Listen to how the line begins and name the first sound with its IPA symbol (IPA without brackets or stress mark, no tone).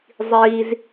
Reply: zˤ